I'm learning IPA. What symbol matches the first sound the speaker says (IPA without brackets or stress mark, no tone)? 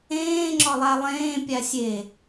ẽː